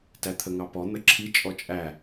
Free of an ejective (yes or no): no